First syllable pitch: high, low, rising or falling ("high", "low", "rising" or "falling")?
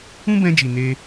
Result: high